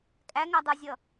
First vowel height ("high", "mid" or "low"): low